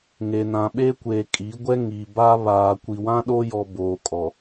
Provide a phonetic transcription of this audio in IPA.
ŋ e˨ n ã˨ ɓ e˦ kʷ eː˨ kʼ i˨˦ ɡʷ ɛ˦ ŋ i˨ b a˦ β aː˨ kʷ i˨ w ã˦ ɗ o˦ j ɔ˨ b oː˨ kʼ ɔ˨

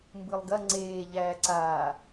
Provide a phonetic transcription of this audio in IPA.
m b ɯ lˠ ɡ ɐ ŋ͡ǀ eː ʎ æː ǀ aː

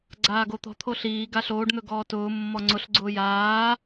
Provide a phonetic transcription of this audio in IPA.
ɡ͡ǀ aː ɡ o t̪ ɔ̤ t̪ʰ o ɬ iː ɡ a ɬ oː ɖ n̪ ɵ ɡ ɔː t ʊː mː ɔ ŋ͡ǀ ʊ ɬ ɡ͡ǀ ʊː j aː

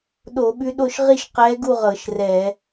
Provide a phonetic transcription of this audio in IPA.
ɗ o˧˩˧ ɓ ʉ˧˥ ɗ o˥˧ ʃ ʁ i˥˧ ʃ q ɛː˧˥ ɡ u˥˧ ʁ ɤ˧˩˧ ʃ r ɛ˧˩˧

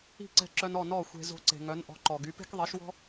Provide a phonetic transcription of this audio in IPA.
i̤˥˩ ǀ ɛ̤˧ ǁ œ˧ n ɔ˥˩ n ɔ˥˩ xʷ e̤˧ z o̤˧ ǀ e̤˩ ŋ œ˩˥ n ʔ ɔ̤˩˥ ǃ ɔ˩ ɡ y˩˥ p e̤˥ k ðˤ i˩˥ ʃ w ɔ̤˥

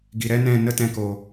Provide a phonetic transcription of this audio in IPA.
ɡ i˨ ɾ ɛ˦ n ɛ̃˦˨ n ə˦ t ɛ̃˧ k o˨

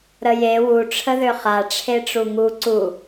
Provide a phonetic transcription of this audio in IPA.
ɾ ə j e w u ʈ͡ʂʰ ə ð ø χ a ʈ͡ʂʰ e ʈ͡ʂ u ŋ u ǀ u

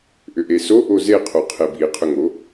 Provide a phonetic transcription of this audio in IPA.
ʔ ʏ ʔ e s o ʔ o z e qʰ o qʰ e b i qʰ ʏ ŋ o

